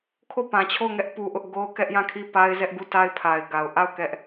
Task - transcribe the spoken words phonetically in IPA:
kʰ o˦˨ p ã˨ t͡ɕʰ o˦˨ ʊ̯ ŋ ɛ˦ ʔ p u˦ ʔ ʊ˦ ʔ ɡ o˦ ʊ̯ k ɛ˦ ʔ j ã˦˨ kʰ i˦˨ p a˦ ɪ̯ z ɛ˦ ʔ ɡ u˦˨ t a˦ ɪ̯ pʰ a˨ ɪ̯ ɡ a˨ ʊ̯ ʔ a˦˨ ʊ̯ k ɛ˦ ʔ

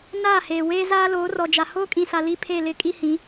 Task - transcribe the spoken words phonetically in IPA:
n aː˦˨ h eː˨ w eː˦ z aː˦ l oː˨˦ r ɔ˨ d͡ʒ a˨ h oː˦ kʼ ĩ˨ s a˨ l i˦ pʰ e˦˨ l ɪ˦ kʼ i˦ h ĩ˨˦

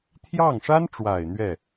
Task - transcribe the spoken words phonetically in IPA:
t̪ʰ j ɑ˥˩ ŋ ʂ a˥ n ʈ͡ʂ w a˨˩ ɪ̯ n̪ ɥ ɛ˥˩

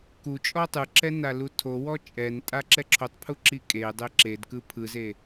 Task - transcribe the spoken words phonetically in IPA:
k u t͡ʃʼ ɔ tˤ ɯ ǁ ɛ n a l u tʰ o w ɔ t͡ʃʼ ɛ n tʼ a ǁ ɛ ǁʰ o tˤ pʰ u ǁ i kʼ e dˤ e ǁ e d k ɯ pʰ ɯ z e

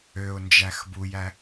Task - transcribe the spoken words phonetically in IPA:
ø ʊ̯ n d͡ʒ æ x b u j æ

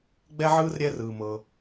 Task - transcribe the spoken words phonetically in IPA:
ɡ͡b ɛ˥ ʕ ɯː˥ r ɾʲ ɛ˥ r ɯː˩ m ɤ˩

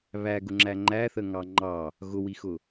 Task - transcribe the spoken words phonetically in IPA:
β æ ɡ ʊ ŋ͡ǁ æ ŋ͡ǃ æ θ ə ŋ ɑ ŋ͡ǃ ɑ | ɣ ʊ w i x ʊ

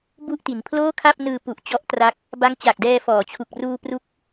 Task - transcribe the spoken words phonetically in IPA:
b u˥˩ ʔ t i˩˦ n pʰ l oː˥˩ kʰ a˥˩ p̚ n ɯː˧ p u˨˩ ʔ t͡ɕ ɔ˦˥ ʔ t r a˦˥ k̚ | b a˦˥ ŋ t͡ɕ a˨˩ k̚ d ɛː˧ f ɔː˩˦ t͡ɕʰ u˨˩ k̚ r uː˧ p r u˦˥ k̚

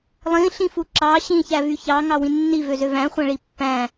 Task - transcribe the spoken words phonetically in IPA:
lˠ ĩ ɬ ĩ f u ǁ ɑ ɕ ĩ ç æ v y ç ɑ ŋ ɑ w ĩ nː i v ø z ø v æ̃ χʷ æ̃ ɭ i pː æ̃

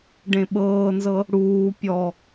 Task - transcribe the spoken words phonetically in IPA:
ɖ ẽ ɓ ɤː n z ɤ | ɽ uː pʲ ɔ

